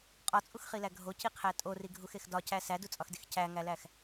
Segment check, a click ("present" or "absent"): absent